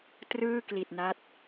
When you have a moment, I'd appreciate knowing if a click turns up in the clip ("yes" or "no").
no